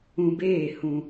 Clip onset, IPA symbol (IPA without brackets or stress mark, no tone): ũ